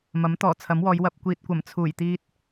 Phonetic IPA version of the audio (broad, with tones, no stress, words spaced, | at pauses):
mɐ˨˥mt̪ɔː˨˩t͡sʰɐ˨˥mwɔː˨˧j wɐ˨p̚kʷiː˨t̚kʷɐ˨˩m t͡sʰuː˨˩j t̪iː˧t̚